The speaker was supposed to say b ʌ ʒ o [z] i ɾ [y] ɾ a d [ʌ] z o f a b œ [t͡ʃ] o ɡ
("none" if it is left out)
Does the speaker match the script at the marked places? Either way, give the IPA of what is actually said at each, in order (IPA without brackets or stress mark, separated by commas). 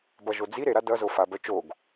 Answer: d͡z, e, ʌ, t͡ʃ